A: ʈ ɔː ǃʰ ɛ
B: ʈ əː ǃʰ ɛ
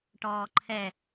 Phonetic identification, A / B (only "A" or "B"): A